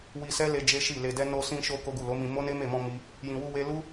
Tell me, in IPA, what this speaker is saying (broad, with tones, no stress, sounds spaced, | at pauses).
w i˧ s ɛ˦ l e˧ d͡ʒ e˦ ʃ i˦˨ l e˧ d ɛ˦ n o˧ s ĩ˧ ʃ o˧ k o˦ ɡ u˦˨ l o˨˦ m ĩ˧ m o˦ n e˦ m e˦˨ m ɔ̃˧ m i˦ | j ĩ˧ w u˦ w e˦ l u˦